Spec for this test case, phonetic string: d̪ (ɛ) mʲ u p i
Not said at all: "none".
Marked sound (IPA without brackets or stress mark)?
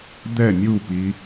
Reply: ɛ